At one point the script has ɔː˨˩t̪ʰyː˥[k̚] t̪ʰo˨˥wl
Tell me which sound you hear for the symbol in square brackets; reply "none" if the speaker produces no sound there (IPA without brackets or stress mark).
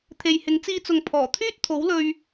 t̚